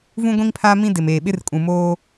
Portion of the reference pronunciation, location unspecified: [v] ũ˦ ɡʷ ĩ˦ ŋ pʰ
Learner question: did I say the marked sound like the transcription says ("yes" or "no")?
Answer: yes